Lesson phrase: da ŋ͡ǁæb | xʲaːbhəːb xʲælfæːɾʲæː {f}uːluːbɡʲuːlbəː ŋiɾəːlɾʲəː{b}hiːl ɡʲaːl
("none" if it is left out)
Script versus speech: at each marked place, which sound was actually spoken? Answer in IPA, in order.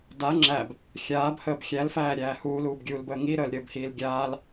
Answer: h, b

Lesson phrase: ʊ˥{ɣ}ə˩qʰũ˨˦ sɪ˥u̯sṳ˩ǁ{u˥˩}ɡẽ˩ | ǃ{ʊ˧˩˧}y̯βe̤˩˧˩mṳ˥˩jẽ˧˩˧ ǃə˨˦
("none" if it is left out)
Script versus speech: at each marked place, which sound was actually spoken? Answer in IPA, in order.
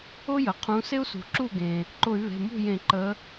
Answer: j, u˥˩, ʊ˧˩˧

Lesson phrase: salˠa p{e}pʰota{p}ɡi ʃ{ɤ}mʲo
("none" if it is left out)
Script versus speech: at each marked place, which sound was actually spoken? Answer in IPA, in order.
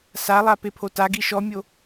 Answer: e, none, ɔ

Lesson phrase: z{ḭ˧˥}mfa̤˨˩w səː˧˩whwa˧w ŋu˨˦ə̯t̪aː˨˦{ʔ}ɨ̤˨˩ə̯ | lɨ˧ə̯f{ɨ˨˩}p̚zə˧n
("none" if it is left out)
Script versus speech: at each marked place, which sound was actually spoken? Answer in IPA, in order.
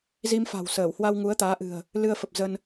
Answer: i˧, ʔ, ə˨˩

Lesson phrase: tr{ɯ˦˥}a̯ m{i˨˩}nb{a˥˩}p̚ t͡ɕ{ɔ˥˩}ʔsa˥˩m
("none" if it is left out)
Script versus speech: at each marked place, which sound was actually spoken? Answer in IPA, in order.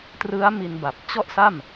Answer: ɯ˦˥, i˧, a˨˩, ɔ˥˩

